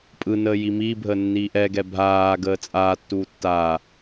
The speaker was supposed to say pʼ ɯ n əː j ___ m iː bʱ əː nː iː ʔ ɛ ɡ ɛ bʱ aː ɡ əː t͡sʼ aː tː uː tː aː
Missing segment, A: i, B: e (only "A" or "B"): A